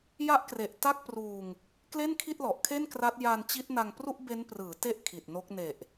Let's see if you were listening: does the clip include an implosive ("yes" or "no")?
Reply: no